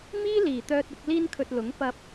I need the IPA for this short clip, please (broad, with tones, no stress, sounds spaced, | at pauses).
m iː˥ l iː˨˩ t̪ œː˧ t̚ ɪ˧ k̚ l iː˥ n kʰ ɵ˧ t̚ l ʊ˨˥ ŋ p ɐ˧ p̚